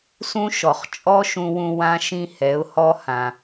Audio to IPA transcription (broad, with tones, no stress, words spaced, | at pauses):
sũ˦ ʃɔ˨χt͡ʃʼɔ˦ʃũ˧wũ˧ wã˦ʃĩ˦hɛ˨˦ʊ̯hɔ˦ hã˨